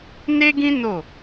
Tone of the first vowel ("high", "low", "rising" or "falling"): high